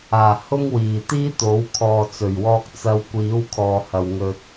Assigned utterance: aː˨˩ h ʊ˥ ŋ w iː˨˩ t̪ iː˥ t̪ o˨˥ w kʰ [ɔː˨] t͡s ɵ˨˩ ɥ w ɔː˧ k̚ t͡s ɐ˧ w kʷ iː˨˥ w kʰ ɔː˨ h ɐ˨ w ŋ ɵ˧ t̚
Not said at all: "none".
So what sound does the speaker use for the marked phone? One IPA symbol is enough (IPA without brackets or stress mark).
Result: ɔː˨